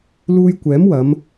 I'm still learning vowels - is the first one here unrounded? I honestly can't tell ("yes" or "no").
no